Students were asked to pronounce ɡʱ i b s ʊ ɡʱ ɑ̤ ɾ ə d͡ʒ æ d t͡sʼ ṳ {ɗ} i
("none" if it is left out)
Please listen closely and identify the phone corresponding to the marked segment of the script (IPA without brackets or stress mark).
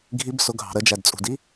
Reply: d